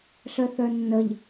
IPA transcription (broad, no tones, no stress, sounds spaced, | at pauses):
ɬ œ θ œ nː ə ʎ